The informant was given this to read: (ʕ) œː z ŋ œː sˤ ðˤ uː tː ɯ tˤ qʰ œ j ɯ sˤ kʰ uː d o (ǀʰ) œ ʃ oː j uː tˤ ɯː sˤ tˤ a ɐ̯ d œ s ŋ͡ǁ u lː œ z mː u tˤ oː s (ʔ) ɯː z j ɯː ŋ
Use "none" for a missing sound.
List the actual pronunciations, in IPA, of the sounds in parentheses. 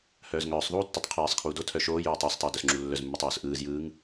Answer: h, tʰ, ʔ

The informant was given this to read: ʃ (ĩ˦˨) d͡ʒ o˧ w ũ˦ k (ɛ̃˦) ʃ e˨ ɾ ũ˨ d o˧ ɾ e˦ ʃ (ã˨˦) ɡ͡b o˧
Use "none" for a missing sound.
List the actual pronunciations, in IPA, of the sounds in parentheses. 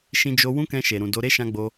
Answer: ĩ˧, ɛ̃˧, ã˧

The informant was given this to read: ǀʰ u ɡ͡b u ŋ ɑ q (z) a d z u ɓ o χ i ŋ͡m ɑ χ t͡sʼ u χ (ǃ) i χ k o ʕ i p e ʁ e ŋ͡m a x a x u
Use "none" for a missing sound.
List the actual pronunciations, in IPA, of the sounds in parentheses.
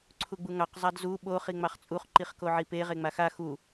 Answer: zˤ, ǃ

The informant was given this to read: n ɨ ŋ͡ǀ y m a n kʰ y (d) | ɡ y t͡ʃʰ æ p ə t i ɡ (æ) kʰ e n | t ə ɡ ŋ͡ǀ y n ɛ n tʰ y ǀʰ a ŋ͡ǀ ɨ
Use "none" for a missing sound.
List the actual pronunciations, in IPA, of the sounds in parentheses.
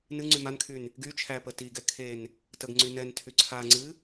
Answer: n, ɛ

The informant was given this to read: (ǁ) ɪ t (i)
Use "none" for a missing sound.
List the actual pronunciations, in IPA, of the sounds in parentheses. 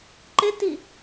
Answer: ǃ, i

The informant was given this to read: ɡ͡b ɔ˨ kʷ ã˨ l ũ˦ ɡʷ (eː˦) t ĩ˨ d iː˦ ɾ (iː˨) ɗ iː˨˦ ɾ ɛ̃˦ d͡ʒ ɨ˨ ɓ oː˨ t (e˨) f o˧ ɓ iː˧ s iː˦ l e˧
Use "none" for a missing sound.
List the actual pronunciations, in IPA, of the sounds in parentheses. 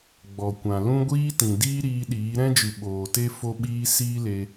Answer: iː˦, iː˧, e˦

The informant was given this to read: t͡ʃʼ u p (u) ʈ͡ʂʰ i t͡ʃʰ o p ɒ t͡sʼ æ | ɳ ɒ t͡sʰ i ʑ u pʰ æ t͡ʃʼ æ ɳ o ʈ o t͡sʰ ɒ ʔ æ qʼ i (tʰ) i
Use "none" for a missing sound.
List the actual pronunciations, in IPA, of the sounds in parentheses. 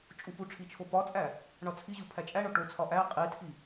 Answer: u, tʰ

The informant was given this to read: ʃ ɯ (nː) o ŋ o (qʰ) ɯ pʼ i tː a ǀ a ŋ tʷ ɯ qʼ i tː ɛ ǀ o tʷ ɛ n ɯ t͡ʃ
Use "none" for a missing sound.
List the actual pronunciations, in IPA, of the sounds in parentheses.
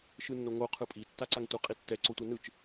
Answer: nː, qʰ

